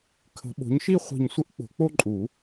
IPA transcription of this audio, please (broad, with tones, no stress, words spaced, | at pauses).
kʰə̤˨˦ɓo̤˨˦ɲʃi˥˧ χʷi̤˧˩ɲsʷə˥˧ʔk͡po̤˨˩˦k͡po˥˧ ǃʼu˨˩˦